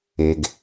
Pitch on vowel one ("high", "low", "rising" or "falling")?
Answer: low